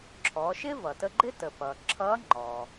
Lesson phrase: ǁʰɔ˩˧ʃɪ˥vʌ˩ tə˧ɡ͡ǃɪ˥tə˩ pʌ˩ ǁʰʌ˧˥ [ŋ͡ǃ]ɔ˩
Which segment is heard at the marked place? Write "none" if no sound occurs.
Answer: ŋ͡ǃ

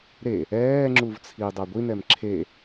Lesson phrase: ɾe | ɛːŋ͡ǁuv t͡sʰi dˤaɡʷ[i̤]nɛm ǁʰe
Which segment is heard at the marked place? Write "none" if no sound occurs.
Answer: i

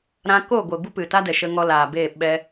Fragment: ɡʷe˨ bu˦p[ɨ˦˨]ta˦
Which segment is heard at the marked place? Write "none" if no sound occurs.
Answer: ɨ˨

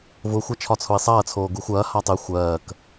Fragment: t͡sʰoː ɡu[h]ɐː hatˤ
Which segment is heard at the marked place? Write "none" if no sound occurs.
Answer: xʷ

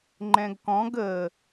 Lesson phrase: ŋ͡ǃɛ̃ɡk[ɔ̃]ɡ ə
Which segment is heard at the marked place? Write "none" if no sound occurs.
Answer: ɔ̃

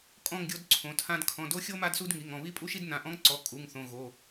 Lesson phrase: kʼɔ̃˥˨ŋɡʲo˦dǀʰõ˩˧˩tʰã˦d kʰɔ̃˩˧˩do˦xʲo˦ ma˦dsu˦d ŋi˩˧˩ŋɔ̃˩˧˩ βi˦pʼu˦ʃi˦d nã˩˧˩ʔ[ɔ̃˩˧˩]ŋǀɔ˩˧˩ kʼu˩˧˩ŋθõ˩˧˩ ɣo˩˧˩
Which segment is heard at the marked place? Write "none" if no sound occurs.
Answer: ɔ̃˦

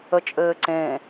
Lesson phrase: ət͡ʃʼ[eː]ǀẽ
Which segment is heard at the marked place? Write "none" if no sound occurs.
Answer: ɘː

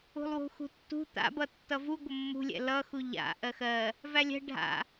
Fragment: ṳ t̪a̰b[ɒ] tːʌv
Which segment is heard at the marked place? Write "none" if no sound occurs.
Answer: ʌ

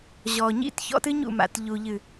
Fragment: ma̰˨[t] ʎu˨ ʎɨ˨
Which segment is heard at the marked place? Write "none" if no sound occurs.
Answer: t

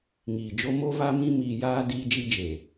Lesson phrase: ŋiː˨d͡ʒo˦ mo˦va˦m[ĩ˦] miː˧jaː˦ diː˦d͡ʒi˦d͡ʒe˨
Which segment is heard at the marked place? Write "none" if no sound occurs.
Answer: ĩ˦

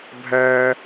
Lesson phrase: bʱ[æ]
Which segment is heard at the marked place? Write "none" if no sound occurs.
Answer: æ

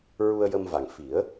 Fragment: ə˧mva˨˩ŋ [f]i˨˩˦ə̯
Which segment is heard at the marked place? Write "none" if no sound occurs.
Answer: f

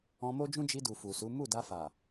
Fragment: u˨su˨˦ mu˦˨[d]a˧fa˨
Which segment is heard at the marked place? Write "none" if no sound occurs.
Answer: d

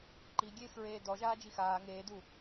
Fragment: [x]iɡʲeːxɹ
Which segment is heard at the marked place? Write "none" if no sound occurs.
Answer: ǃ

